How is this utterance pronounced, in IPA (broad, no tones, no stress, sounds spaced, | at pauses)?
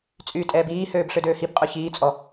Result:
t͡sʼ yː tʼ ɛː b iː h øː b ɬ ø d øː h i b qʼ œ ç iː t͡sʼ ɔ